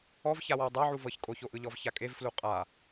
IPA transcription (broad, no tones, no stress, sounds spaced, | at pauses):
ɔ v ç a w ɔ w dˤ a ʕ u v ɤ ç kʼ o ç o ʔ ɯ ʎ ɔ v ç a kʼ e v f l u qʼ a